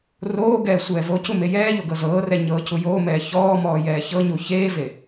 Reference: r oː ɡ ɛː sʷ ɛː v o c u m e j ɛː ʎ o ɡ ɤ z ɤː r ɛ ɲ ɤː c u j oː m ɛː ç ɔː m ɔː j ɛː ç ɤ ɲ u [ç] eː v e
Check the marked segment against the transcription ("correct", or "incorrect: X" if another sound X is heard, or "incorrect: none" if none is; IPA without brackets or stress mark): correct